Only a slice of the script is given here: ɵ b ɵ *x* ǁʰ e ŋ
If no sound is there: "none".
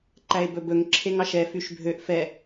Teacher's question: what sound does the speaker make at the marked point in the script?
ŋ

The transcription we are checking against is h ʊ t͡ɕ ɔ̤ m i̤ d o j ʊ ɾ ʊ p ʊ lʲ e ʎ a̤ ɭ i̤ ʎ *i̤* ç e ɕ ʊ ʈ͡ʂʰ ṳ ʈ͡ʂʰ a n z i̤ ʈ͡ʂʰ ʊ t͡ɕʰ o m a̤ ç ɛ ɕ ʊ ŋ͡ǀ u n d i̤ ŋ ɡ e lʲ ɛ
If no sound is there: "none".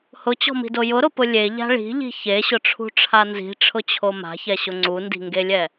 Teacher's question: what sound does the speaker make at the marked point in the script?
i̤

